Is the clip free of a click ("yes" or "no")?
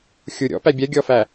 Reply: yes